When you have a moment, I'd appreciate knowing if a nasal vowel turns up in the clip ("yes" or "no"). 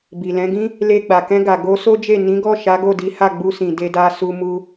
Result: yes